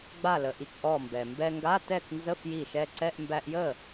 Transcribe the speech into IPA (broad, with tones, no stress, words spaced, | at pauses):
ɡ͡ba˧˩lə˩ʔi˩k ʔɔ˧˩mbɛ˩ mbɛ˧ŋɡa˧˥˧tɛ˥˩k nzə˧˥˧fji˧˩ ʃɛ˧ǀɛ˧˥˧ʔ mbæ˧ʔjə˥˩